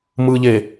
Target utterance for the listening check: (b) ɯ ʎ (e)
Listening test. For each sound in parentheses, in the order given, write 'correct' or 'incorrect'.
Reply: incorrect, correct

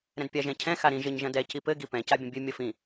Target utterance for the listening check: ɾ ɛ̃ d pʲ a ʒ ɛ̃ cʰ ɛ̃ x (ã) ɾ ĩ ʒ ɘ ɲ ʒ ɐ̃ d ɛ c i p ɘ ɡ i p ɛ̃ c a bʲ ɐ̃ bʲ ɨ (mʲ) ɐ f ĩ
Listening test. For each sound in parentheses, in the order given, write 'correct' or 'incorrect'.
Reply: incorrect, correct

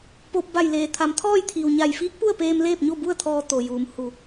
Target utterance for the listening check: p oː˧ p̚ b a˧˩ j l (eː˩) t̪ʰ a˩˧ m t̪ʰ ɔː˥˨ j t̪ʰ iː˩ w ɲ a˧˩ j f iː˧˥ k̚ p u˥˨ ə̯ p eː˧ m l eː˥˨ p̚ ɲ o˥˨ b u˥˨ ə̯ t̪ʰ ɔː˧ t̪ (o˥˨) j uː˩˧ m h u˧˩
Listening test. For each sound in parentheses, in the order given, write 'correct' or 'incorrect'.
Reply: correct, incorrect

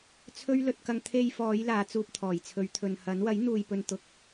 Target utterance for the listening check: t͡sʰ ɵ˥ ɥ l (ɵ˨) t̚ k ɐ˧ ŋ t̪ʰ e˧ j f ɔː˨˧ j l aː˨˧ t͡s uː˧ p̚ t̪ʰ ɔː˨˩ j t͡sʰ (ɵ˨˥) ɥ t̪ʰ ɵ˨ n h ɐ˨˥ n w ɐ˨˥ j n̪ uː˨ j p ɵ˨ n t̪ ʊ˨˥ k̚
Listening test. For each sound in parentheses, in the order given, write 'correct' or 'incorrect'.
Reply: incorrect, incorrect

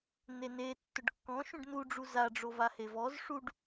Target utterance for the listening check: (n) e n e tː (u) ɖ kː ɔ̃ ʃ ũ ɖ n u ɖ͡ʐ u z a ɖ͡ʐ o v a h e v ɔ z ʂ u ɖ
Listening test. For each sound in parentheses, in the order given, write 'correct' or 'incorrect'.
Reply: correct, incorrect

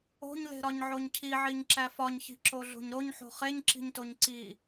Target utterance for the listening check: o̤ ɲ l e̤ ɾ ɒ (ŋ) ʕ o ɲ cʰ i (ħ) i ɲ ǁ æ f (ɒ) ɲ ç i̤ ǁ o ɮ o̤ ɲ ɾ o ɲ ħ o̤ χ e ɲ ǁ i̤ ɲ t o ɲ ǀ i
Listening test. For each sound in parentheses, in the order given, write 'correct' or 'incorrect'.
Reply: incorrect, incorrect, correct

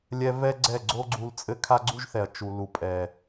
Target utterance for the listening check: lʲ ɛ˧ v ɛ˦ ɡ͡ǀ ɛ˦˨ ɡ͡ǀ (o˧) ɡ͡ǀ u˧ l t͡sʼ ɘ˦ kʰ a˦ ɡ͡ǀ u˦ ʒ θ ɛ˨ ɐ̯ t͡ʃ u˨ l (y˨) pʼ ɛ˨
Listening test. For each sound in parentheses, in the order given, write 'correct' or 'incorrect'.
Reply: incorrect, incorrect

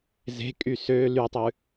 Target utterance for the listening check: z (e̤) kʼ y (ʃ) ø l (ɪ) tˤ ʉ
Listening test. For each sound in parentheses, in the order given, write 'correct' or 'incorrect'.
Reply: correct, incorrect, incorrect

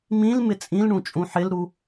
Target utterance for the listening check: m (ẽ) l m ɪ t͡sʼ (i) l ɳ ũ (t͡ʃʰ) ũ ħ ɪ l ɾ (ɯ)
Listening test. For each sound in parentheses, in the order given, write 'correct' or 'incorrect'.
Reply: incorrect, incorrect, incorrect, incorrect

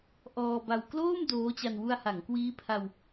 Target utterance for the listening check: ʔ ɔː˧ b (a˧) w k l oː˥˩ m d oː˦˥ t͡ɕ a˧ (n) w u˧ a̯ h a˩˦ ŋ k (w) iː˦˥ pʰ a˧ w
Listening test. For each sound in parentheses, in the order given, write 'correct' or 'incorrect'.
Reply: correct, correct, correct

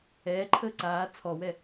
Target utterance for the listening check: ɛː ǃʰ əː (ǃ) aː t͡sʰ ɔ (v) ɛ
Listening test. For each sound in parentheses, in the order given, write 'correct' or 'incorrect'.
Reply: incorrect, incorrect

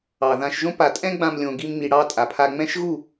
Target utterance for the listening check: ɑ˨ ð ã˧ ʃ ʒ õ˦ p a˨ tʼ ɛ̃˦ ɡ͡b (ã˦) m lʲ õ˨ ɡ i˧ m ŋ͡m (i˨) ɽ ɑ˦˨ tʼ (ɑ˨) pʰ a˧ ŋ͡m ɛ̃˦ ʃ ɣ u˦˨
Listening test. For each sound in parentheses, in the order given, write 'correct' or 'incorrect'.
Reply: incorrect, correct, incorrect

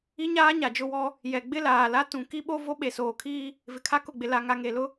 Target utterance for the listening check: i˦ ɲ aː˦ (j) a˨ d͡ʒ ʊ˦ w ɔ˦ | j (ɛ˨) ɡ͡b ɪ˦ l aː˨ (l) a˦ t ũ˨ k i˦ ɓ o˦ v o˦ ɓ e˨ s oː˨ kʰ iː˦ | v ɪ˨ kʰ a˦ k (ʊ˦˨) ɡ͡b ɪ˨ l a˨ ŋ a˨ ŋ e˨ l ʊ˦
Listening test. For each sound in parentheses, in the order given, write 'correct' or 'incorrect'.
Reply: incorrect, correct, correct, correct

